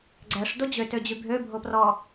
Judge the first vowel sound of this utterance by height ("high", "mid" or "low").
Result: low